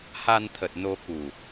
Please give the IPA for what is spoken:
h a˧ n t̪ʰ ə˨˩ t̚ n o˧ k u˨˩

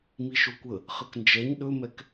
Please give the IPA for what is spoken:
m i ʃ o kʷ ə | χ ə k n d͡ʒ ɛ ɲ ɗ ɵ m ɛ k

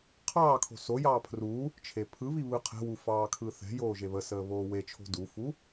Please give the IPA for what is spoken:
qʰ ɑː kʰ o̤ s o j ɑː pʰ r u | t͡ʃʰ e pʰ ɯ β i β ɯ qʰ ɛ̤ w u f ɑː kʰ ɯ θ ɛ̤ j oː ʒ e β ə s əː β oː w e t͡ʃʰ o̤ d u f u

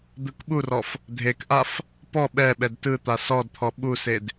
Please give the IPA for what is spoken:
d̪ ɯ k ɓ u r ɔ f | dʱ e k ʔ a f | p ɔ ɓ ɛ ɓ ɛ d t ɯ t̪ a s ɔ d t̪ʰ ɔ ɓ u s e d

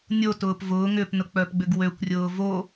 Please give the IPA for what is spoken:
nʲ o t ʊː p v ʊː ŋ ʏː p n ʊ k͡p œ p ɡ͡b ʏ ɡ w ø kʷ rʲ ʊː v o

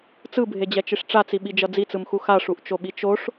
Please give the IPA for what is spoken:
t͡s ɯ bʱ e d͡ʑ ɛ t͡ʃ i ʂ ʈ͡ʂ a t͡s i ɓ i d͡ʒ ʌ d͡z i t͡s ɯ m x u x a ʂ u ʔ t͡ʃ o ɓ i t͡ʃ o ʂ

